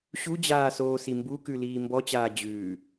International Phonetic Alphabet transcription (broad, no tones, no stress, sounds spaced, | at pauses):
ɕ u d͡ʑ aː s oː s i m b u k ʉ l iː m b ɔ t͡ɕ aː d͡ʑ ʉː